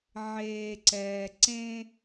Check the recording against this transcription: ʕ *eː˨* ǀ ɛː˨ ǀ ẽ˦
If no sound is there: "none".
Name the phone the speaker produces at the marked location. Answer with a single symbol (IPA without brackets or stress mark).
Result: eː˨